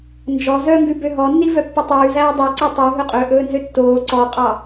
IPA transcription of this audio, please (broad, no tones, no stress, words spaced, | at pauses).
nd͡ʒɔ zœŋɡʉ bøɦɔnːi vœpːɵtˤʉːzæː dˤiǀø tˤʉ ɦɵqʼɵʔɵːnzø tːoː ǀɔqʼɑ